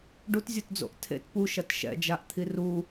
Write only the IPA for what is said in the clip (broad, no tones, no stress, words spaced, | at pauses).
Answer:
ɖutzʲutd͡zo̰ʔ tʰḛt puʃɐt ʃɛ̰d͡ʒaʔt̪ʰi ru